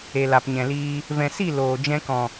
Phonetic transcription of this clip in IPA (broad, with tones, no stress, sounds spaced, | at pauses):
e˨ l a˨ p ɲ ɛ̃˨ l iː˧ | v ɛ̃˨ s i˦˨ l oː˨ d͡ʒ ɛ̃˧ k ɔ̃˨